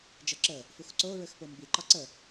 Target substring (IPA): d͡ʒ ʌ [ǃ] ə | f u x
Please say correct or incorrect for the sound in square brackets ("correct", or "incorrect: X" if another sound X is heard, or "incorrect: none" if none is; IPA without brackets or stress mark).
incorrect: ǁ